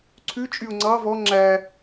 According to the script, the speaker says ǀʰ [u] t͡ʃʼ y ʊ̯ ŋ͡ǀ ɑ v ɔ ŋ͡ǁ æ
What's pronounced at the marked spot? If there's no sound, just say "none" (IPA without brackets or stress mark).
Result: ʉ